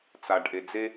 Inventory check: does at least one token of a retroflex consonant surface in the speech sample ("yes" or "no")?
yes